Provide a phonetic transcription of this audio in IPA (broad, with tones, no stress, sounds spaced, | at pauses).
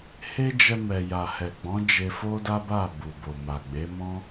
h e˦ d͡ʒ ɛ˧ m ɛ˨ j a˨ h ɛ˨ ɡ͡b ɔ̃˨˦ d͡ʒ e˧ f o˦ d a˦ b a˦˨ b u˨ b o˨ m a˨ ɡ͡b e˨˦ m ɔ̃˦